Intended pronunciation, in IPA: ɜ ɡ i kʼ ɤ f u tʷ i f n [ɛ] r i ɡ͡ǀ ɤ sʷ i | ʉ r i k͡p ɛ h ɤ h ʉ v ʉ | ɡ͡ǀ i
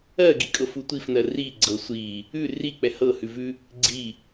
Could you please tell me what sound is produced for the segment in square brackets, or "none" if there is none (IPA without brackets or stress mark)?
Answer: ɜ